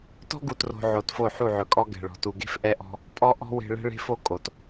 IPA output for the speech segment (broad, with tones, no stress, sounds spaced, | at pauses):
t ɔ̤˦ ɡ u˨ t r o̤˨ ʕ o˨ t f o˦˨ ħ u˦˨ ʕ ɵ˨ kʼ ɔ˦ ɡ ɛ̤˨ ɭ ɔ̤˨ t u˨ ɡ e̤˦ f ʔ ɛ˦ ʔ ɔ̤˦ | pʼ ɔ˦ ʔ ɔ̤˦ w e̤˦ ɭ ɛ̤˦ ɭ e̤˦ f o˦ kʼ o˨ t